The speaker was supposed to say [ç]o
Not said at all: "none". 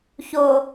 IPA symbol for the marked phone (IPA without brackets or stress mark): ç